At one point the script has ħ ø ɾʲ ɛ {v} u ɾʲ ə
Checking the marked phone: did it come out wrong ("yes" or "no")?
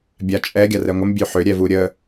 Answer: no